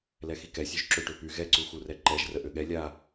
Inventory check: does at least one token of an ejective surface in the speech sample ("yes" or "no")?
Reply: no